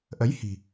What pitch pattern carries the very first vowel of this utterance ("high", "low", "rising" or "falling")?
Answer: rising